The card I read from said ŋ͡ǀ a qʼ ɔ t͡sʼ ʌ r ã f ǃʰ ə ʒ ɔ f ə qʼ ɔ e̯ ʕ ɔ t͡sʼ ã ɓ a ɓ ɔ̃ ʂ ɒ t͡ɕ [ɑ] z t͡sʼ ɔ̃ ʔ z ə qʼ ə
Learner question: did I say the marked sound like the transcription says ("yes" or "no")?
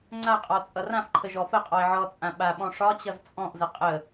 no